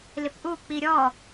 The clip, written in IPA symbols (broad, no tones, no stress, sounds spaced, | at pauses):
l ɪ p ʔ u k͡p i ɾʲ ɔ